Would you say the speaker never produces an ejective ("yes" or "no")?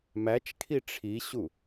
yes